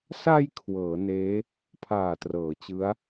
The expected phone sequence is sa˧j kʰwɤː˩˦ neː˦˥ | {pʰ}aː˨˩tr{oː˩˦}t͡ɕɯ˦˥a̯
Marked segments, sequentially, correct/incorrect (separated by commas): correct, incorrect